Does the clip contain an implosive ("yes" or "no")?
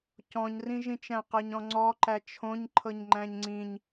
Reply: no